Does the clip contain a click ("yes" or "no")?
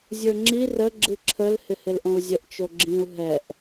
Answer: yes